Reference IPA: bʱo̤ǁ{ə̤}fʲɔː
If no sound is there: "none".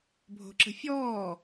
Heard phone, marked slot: ə̤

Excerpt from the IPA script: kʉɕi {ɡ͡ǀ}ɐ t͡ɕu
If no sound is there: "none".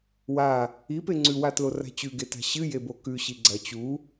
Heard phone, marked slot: ɡ͡ǀ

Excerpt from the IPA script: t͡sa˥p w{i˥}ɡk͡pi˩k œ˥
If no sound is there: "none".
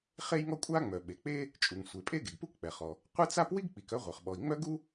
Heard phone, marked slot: i˥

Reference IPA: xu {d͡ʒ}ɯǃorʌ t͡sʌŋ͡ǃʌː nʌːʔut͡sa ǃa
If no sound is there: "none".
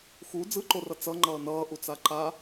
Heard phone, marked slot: d͡z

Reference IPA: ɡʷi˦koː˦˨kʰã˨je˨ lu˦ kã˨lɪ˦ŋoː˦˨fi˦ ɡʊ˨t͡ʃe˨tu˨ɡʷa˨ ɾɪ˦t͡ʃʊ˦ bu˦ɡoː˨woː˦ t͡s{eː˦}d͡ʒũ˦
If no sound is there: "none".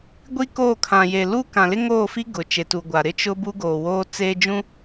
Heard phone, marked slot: eː˦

